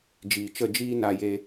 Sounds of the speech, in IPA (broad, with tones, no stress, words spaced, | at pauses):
d͡ʒiː˨t͡ʃə˦˨d͡ʒiː˦ na˦je˦